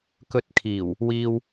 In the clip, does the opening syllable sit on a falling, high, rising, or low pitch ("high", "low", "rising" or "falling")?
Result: rising